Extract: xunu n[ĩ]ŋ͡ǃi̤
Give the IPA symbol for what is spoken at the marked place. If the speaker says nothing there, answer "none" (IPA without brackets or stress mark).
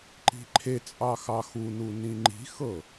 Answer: ĩ